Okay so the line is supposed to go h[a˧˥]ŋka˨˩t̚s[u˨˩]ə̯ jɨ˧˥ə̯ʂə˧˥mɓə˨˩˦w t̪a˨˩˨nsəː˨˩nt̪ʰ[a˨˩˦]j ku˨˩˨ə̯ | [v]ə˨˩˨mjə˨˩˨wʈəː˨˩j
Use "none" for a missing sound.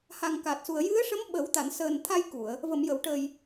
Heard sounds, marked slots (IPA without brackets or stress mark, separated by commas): a˨˩, u˨˩, a˧, v